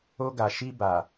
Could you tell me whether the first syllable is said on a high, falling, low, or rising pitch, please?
high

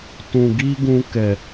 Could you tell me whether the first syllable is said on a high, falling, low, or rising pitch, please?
low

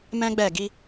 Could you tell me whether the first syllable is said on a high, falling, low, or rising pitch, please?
high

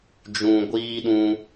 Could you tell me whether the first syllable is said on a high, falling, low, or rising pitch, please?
low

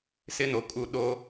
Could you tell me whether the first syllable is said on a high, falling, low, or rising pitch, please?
high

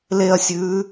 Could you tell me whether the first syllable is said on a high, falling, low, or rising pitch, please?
falling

